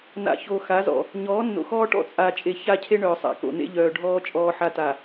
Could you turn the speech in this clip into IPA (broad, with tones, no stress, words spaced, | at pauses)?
na̰˨ço˨xa˨˦zɔ̰˨ | ɲɔː˨˦nːo̰˨xɔː˦ʈɔ̰˦ t͡sʼaː˨t͡ʃʼe˨ ça˦cʰe˦ɳœː˨sˤa̰˨ ko̰˨nḛ˦ ʎœː˨ɖʱɔː˦ t͡ʃʼɔː˦ħa˦ta˨